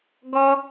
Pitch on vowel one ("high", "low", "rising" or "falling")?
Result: high